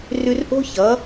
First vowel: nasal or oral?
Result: oral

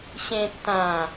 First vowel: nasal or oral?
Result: nasal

